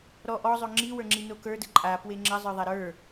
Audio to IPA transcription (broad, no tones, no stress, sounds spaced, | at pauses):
ɾ ɔ ʔ ɔ zˤ o ŋ͡ǁ i w ə˞ ŋ͡ǁ i n o k ə˞ d ə ǃʼ a p w e ŋ͡ǁ ə zˤ ə˞ ðˤ a ɾ ə˞